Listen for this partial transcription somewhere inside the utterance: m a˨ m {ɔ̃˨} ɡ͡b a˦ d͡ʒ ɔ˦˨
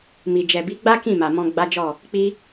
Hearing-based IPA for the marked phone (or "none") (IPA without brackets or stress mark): ɔ̃˧